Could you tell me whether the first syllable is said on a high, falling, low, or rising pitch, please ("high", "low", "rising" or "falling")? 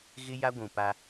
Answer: high